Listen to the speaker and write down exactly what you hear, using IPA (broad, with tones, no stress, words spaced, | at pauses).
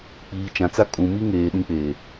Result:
k͡piː˨t͡ʃã˨t͡sa˦ kʼũ˨mi˦ŋeː˨ ɗĩ˦k͡peː˨